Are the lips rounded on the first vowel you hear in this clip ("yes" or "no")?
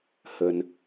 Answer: no